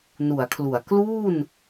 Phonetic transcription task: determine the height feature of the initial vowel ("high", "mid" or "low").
high